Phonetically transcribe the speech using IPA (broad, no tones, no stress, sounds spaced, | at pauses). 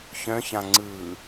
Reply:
ç œ̃ ç ã ŋ͡ǀ ɯː